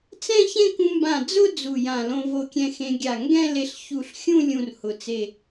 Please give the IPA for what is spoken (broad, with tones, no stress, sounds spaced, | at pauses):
t͡s ɛ̃˥˧ ç ẽ˥˧ k ũ˧ m b ã˧˩ d͡z ʊ˥˧ d͡z u˧˩ j ã˧˩ l õ˧ v o˧ kʲ ɛ̃˧ x ẽ˧ ɡʲ a˧˩ ŋ ɡ ɛ̃˥˧ l e˧ ɬ ç u˧˩ ɬ xʲ ũ˥˧ lʲ ũ˥˧ r h ʊ˧˩ t͡s e˥˧